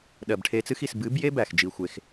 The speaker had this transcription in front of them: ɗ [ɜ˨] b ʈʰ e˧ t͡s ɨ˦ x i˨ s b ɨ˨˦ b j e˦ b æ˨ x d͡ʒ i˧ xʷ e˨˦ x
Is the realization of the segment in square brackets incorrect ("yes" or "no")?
no